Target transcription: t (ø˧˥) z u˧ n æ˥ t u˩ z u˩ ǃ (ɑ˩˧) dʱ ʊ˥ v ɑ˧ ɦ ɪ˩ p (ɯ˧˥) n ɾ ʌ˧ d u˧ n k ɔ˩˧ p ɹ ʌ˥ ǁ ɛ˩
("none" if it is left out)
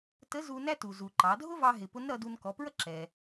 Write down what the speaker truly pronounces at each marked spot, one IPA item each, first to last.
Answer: ə˧˥, ɑ˩˧, ʊ˧˥

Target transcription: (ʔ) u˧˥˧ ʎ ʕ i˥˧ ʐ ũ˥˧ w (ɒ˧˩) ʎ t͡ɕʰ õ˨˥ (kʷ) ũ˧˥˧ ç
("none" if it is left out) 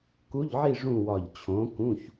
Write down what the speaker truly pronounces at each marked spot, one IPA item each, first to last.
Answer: k, ɒ˧˩, k

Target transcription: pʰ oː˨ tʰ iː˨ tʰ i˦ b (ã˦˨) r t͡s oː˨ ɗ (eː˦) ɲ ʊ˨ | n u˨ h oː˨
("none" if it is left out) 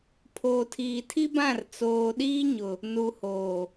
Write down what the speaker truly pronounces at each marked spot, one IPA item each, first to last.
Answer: ã˦˨, iː˦

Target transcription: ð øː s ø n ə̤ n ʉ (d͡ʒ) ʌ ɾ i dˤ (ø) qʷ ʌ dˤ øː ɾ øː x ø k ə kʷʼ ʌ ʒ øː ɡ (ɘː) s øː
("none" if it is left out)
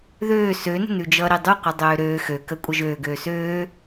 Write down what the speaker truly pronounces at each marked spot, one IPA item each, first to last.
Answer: d͡ʒ, ʉ, øː

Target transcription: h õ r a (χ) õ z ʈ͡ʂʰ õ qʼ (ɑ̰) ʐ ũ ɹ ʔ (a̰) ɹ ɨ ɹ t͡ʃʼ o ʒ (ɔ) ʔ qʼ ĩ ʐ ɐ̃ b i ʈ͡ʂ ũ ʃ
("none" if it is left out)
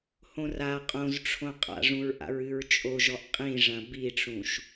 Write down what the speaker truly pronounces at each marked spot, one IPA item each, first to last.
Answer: qʼ, a̰, a̰, ɔ

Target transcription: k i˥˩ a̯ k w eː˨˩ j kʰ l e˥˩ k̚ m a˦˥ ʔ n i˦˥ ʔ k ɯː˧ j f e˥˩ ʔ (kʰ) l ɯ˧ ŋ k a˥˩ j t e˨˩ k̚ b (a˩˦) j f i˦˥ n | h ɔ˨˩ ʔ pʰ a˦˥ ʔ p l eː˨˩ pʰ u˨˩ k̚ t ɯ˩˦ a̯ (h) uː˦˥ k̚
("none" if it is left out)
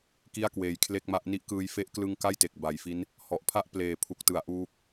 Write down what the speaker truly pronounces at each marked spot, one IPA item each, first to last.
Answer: k, a˨˩, ʔ

